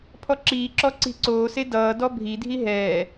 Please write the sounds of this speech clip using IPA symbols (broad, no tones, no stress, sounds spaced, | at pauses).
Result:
pʰ ɔ ǁ iː ǁ ɔ ǀ i̤ ǀ oː s e d ʌː d ɔ bʱ i dʱ i ɦ ɛː